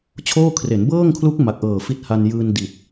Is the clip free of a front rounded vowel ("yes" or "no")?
yes